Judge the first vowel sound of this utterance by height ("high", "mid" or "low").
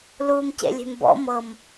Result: high